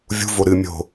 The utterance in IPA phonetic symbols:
vʲṳ voɾɨ mʲo̤

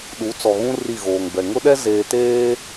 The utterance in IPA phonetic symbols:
ɗu˨˦t͡sɔ˨ɣũ˦ ri˦˨ɣoː˨ŋbɛ˨ ŋʊ˦ɗɛ˦ zeː˨teː˦

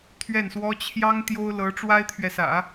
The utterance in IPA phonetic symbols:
t̪ʰɥɛ˥˩nswɔ˥ t͡ɕʰjɑ˥ŋ t̪jo˥ʊ̯lɤ˧˥ ʈ͡ʂwa˥ɪ̯t̪ʰɥɛ˨sä̰˨˩˦

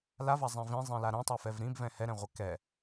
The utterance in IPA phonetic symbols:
lavazˤĩ vĩzˤĩla ɾɛ̃tˤɛfɛv ɾĩbvɛ̃ hɛɾɛ̃ʁʷɛ kɛ

